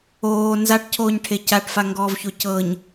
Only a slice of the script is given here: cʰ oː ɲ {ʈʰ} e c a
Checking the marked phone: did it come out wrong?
no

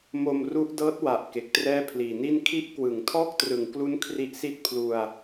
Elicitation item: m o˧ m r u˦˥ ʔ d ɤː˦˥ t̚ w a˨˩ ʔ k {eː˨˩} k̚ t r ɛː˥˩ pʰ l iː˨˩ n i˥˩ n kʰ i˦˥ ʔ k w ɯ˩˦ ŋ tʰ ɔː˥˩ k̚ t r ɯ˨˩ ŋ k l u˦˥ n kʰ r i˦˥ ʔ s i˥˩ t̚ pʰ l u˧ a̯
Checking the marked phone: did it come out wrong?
yes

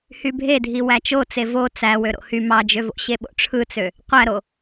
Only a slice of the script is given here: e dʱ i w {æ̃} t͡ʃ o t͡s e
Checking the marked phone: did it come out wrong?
yes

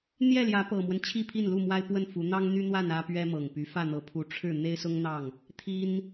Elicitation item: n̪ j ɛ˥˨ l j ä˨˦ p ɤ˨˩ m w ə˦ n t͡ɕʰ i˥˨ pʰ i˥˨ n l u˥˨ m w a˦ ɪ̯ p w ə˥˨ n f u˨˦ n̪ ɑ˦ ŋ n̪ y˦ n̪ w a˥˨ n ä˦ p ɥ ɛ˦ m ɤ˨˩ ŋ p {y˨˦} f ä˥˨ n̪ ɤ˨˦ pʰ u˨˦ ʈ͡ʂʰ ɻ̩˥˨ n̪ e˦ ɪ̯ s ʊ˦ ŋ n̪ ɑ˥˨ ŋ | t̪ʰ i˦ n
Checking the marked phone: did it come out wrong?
no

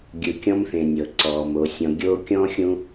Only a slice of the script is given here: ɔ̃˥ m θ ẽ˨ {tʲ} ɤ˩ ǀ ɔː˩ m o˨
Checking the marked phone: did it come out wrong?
yes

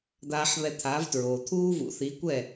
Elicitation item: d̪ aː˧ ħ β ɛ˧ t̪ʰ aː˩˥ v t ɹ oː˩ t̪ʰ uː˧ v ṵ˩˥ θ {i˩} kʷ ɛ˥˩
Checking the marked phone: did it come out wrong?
yes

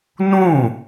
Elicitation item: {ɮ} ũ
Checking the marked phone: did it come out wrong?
yes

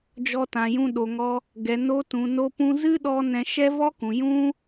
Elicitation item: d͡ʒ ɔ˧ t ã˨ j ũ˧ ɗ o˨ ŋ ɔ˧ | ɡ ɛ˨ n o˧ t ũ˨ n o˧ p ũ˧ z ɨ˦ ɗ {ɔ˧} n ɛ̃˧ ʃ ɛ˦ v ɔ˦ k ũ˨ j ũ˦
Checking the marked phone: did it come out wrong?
no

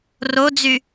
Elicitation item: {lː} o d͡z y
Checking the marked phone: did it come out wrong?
yes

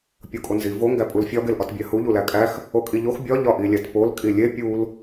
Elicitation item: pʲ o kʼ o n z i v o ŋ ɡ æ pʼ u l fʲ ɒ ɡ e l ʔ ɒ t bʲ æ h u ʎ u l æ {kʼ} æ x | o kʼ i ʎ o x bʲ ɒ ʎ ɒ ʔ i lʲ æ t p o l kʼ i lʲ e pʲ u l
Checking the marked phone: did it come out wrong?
no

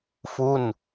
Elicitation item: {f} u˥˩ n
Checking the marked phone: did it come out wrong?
no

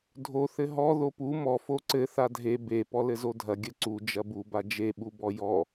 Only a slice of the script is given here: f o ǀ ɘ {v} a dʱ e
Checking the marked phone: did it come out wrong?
yes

